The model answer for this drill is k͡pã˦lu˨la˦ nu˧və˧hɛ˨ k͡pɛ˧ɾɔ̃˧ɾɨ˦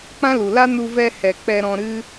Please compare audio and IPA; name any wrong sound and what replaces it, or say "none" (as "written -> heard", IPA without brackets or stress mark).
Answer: ə˧ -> ɛ˧